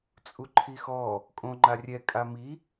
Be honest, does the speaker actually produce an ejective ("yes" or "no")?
yes